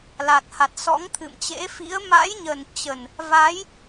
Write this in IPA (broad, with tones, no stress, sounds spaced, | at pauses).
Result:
l a˨˩ t̚ h a˨˩ t̚ s ɔ̰˧˥ ŋ t̪ʰ ɨ̰˧˨ m t͡ɕ ḛ˧˥ f ḭ˧˥ ə̯ m a̰˧˥ j ɲ ə˨˩ n t͡ɕ ə˨˩ n | v a˨˦ j